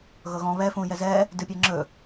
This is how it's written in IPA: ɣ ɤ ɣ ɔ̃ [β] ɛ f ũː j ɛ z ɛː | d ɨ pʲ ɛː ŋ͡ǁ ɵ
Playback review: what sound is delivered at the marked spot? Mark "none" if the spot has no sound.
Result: β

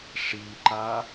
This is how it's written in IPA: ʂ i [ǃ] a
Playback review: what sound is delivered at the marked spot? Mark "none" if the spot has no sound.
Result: ǃ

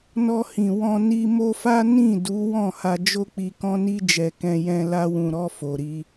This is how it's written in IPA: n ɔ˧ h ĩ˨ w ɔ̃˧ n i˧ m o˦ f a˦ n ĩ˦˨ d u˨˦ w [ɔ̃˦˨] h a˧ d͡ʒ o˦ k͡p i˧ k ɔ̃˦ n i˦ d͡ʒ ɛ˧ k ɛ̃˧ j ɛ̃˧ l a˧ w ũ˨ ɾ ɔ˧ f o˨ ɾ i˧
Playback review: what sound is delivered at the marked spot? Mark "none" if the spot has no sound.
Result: ɔ̃˦˨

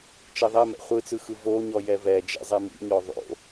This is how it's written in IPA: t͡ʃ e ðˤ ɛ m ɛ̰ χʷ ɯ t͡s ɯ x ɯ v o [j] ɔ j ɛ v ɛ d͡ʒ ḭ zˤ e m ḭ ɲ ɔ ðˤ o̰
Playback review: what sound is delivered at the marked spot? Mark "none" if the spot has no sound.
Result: ɲ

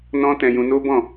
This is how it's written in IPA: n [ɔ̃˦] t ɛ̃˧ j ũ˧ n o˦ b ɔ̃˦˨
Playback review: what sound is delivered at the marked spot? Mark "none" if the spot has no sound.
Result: ɔ̃˦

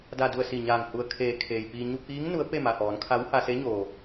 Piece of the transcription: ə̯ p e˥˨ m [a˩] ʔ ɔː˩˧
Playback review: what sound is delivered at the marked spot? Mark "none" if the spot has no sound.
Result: a˩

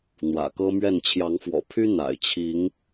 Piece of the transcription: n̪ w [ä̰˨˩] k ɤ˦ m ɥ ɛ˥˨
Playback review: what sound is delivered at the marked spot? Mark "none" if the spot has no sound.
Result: ä̰˨˩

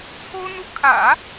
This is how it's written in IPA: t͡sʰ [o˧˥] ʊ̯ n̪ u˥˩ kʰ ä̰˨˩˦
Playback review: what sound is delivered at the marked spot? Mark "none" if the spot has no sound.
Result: o˥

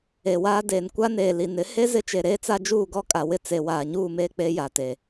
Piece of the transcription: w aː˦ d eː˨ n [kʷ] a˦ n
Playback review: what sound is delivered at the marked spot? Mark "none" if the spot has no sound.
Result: kʷ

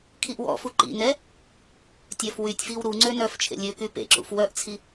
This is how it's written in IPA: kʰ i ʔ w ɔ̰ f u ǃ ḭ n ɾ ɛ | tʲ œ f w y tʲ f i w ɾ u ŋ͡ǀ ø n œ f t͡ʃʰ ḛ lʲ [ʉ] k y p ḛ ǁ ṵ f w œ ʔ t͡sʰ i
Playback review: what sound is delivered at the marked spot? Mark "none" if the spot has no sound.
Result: ø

